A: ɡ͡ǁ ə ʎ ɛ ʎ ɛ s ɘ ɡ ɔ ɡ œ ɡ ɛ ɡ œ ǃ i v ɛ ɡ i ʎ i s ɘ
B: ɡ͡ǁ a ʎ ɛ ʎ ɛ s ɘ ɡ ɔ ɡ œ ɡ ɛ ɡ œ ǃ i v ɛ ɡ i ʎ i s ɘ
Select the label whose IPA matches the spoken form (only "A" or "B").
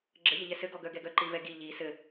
A